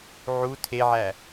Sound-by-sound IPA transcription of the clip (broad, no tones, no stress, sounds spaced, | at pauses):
ʕ u tʰ e ʕ æ